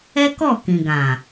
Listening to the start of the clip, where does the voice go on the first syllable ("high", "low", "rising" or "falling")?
high